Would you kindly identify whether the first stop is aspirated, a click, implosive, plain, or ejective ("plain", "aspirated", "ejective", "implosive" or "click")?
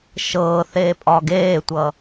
ejective